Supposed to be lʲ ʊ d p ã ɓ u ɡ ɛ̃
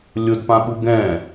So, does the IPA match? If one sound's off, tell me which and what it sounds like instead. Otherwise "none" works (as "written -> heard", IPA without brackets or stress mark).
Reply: none